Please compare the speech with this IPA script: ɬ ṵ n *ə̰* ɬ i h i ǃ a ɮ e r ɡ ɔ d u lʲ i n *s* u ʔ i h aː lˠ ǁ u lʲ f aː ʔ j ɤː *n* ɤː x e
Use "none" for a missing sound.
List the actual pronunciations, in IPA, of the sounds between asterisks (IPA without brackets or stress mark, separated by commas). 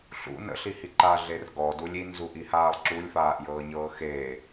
ə̰, z, ɲ